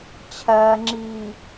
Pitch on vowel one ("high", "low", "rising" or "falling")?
low